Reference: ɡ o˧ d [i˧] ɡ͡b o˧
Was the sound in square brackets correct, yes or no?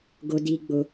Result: yes